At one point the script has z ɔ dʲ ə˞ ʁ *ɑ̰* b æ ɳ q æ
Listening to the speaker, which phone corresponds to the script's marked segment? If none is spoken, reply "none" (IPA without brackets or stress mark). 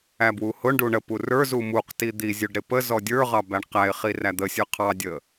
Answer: ɑ